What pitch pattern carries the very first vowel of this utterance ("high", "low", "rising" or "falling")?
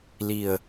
low